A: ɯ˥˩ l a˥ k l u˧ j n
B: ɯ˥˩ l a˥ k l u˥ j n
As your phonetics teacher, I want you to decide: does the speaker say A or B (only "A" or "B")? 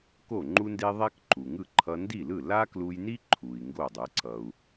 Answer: A